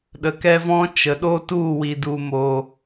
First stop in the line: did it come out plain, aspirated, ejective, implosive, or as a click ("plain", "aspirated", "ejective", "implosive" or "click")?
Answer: implosive